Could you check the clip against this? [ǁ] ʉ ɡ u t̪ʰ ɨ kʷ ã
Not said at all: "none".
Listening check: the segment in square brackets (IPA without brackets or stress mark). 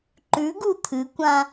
ǃ